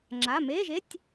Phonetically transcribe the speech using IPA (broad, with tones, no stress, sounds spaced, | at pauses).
ŋ͡ǁ a˩˧˩ m eː˧˥˧ ʒ e˧˥˧ tʲ